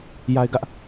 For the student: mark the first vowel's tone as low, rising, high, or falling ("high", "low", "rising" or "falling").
high